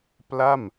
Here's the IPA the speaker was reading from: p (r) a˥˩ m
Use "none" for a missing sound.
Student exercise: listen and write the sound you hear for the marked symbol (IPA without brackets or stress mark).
l